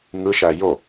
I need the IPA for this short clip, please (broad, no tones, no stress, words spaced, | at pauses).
ŋɯʃæ jo